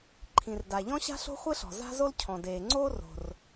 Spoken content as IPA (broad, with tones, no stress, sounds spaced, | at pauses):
ǃʰ ĩ˩ r d a˩ ʎ ɔ̃˥ ɕ a̤˥ ɬ o̤˥ χʷ e˥ ɬ ɔ̤˩ z a̤˥ z o˥ l cʰ ɔ̃˩ d eː˩ ŋ͡ǀ oː˥ r o̤˩ r